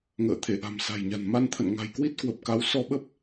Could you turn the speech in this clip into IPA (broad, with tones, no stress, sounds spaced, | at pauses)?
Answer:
ŋ ə̰ː˧˨ t̪ʰ e˧˩ ʔ a̤˨˩ m s a̤˨˩ j ɲ a̤˨˩ n m a˧ n t̪ʰ ə̰˧˨ n ŋ a̤˨˩ j k w i˦˥ t̚ k w ə˨˩ p̚ k a˨˦ w s ɔ˧ ɓ ə˦˥ p̚